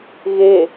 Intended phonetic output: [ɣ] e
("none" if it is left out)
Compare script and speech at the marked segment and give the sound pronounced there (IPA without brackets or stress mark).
ɣ